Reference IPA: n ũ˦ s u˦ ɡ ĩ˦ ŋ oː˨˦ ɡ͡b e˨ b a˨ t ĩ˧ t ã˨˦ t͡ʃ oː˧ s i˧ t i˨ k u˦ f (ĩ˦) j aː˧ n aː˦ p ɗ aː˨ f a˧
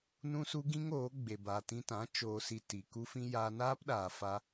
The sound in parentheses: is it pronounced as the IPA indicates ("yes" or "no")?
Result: yes